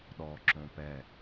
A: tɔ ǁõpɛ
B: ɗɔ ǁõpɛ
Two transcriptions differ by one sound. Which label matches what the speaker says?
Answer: B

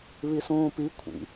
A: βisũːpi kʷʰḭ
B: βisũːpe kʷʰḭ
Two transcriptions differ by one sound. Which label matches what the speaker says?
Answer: A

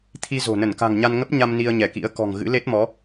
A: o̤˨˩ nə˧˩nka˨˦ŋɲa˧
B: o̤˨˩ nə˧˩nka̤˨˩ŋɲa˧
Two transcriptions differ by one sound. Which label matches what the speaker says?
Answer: B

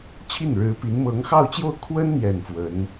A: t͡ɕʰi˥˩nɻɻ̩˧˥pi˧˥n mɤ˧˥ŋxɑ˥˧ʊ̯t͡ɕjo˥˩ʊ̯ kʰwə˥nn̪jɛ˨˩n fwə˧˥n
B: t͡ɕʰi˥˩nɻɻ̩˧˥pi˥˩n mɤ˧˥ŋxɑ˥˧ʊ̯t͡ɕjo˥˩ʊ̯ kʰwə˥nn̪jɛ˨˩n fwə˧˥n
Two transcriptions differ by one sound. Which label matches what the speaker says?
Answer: A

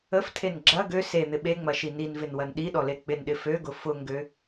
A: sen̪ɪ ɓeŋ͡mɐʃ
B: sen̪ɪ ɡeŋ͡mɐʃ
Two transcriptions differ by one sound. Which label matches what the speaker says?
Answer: A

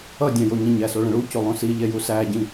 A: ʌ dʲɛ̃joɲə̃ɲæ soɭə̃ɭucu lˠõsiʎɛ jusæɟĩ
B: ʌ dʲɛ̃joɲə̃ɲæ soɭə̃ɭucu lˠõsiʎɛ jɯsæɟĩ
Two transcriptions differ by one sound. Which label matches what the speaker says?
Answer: A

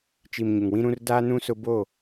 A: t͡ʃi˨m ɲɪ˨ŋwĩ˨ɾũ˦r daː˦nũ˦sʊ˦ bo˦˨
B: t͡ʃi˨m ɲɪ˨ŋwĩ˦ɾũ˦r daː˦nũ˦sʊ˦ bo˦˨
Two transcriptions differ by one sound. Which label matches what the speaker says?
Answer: B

